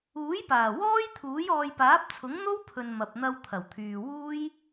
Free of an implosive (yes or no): yes